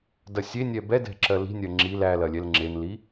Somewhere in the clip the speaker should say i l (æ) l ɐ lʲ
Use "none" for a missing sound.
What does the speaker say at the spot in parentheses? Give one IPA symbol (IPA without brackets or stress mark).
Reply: æ